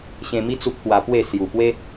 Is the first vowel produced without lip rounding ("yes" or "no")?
yes